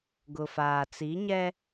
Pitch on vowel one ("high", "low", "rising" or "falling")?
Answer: low